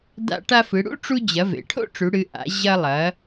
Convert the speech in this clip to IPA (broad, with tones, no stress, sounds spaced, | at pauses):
d a̰˧ ʈ a˧ f ɨ˩˧ ɽ ṵ˥ ʈ͡ʂ u˧ d͡ʑ ɐ˩˧ v ḛ˩ ʈʰ o̰˥ ʈ͡ʂ ʉ˩˧ ɽ ɨ˩˧ ʔ a̰˩˧ ʑ ɐ˧ lˠ ɐ˩˧